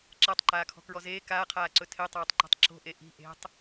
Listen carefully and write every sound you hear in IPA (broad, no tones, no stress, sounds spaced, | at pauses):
ǁ a tˤ ǃ aː kʰ ɔ̤ k ɹ ɔ z eː k aː qʰ aː ǀ ɵ tʰ e tˤ aː tˤ ǃ o̤ tˤ ǁ o̤ ʔ e ʔ i̤ ʔ e̤ tˤ